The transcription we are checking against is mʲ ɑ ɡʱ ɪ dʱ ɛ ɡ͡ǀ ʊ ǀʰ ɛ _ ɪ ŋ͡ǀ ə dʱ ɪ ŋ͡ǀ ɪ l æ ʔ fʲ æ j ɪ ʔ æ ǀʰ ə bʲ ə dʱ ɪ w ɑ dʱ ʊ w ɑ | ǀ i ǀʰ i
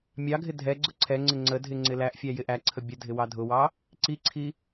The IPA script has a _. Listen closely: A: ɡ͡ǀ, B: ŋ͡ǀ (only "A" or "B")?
B